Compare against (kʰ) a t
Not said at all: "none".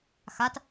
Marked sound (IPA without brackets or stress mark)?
x